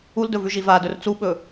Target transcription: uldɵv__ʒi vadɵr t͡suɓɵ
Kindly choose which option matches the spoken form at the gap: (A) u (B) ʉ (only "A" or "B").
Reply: B